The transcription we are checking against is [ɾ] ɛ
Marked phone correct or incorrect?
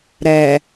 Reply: correct